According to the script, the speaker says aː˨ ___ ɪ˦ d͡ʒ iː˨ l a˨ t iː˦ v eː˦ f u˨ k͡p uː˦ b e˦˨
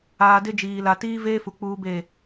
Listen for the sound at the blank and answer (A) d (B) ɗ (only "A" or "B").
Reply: A